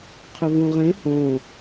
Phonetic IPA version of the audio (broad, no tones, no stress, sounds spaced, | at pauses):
qʰ ʏ v ũ ʁ ẽ h õ